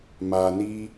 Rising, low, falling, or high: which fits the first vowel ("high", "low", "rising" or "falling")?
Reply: low